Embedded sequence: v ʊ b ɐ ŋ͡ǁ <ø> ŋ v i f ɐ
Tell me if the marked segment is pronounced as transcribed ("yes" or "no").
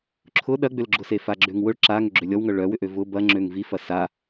yes